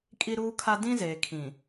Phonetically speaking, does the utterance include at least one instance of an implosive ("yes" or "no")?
no